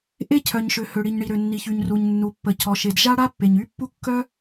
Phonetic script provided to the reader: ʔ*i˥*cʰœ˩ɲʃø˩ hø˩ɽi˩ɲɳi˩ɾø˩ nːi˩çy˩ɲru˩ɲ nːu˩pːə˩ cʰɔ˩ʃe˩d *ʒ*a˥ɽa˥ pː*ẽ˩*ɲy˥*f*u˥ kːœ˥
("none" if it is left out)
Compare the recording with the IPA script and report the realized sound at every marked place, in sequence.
e˥, ʒ, e˩, pː

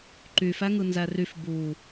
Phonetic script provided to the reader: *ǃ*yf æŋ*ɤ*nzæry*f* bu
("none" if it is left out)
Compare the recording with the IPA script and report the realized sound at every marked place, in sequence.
ǃ, ɯ, f

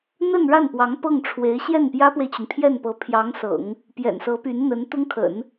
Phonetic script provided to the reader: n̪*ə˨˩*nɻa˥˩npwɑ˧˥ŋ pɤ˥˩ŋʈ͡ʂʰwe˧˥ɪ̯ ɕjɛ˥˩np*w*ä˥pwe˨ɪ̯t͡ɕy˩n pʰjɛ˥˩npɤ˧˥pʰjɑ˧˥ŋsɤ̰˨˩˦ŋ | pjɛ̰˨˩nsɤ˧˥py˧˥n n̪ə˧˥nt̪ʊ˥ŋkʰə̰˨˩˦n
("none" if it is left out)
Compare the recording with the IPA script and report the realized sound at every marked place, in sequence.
ə˥˧, j

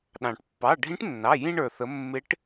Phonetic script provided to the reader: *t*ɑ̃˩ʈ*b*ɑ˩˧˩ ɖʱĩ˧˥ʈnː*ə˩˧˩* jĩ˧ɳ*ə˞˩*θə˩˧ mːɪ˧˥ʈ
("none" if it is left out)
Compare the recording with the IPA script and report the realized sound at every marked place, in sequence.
ɗ, pː, ɑ˩˧˩, ə˞˩

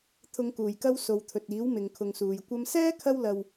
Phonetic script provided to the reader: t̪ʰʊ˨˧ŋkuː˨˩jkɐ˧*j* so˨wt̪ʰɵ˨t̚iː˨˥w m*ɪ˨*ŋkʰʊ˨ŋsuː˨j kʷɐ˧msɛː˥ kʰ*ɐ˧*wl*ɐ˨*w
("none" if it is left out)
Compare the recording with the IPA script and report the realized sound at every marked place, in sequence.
w, ɪ˨, ɐ˥, ɐ˧

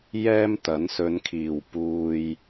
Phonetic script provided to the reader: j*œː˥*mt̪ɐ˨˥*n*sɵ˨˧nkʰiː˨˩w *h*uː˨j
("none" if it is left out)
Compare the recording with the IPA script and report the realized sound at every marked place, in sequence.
ɛː˥, n, p

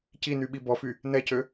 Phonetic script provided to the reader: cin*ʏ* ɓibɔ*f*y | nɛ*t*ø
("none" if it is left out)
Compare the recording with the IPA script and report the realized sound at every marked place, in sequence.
y, f, c

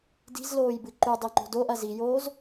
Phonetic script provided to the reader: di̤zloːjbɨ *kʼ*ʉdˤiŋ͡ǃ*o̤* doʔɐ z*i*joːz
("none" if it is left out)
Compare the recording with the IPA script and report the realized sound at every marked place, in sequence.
ǃ, o̤, i

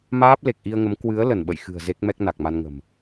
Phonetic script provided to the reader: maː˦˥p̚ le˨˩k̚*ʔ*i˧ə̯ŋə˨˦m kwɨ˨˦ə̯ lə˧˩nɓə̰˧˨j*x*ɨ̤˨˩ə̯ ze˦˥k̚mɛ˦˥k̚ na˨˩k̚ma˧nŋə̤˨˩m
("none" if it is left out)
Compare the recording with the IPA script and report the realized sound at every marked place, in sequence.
ʔ, x

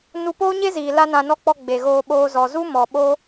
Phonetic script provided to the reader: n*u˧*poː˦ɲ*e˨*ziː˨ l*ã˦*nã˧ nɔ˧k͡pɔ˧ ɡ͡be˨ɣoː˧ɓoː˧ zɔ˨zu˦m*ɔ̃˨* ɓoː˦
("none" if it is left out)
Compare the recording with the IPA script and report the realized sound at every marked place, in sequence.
u˧, e˦, a˦, ɔ˨

